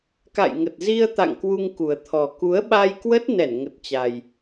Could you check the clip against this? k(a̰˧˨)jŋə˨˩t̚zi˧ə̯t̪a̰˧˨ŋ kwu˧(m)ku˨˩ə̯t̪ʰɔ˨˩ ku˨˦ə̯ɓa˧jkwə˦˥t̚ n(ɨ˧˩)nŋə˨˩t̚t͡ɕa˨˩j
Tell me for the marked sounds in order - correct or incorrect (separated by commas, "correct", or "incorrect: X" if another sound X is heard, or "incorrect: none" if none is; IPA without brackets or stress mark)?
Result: correct, incorrect: ŋ, incorrect: ɛ˧˩